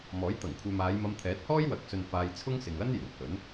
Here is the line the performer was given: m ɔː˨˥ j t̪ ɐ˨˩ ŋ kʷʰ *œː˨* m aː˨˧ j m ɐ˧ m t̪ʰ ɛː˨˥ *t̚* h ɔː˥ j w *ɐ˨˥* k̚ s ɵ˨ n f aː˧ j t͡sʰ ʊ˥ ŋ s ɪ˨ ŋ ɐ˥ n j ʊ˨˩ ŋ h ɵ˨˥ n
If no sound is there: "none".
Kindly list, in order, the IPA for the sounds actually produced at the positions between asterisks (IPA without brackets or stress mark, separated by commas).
œː˨, t̚, ɐ˨˥